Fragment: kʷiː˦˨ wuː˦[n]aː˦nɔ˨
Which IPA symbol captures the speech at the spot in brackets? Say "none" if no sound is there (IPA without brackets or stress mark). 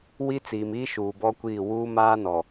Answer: m